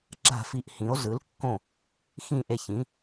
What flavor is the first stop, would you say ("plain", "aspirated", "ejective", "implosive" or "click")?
click